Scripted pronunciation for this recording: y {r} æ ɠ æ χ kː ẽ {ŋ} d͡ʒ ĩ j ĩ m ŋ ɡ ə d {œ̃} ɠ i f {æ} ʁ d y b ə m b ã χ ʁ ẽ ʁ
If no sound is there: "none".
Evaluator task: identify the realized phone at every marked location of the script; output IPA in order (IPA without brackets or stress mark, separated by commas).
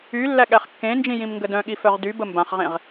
lː, n, œ̃, œ